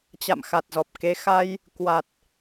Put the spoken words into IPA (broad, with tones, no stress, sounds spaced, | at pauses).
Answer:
t͡ɕ a̰˧˨ m x a˨˩ t̚ z ɔ˨˩ p̚ k e˨˦ x a˧ j | k w a˨˩ t̚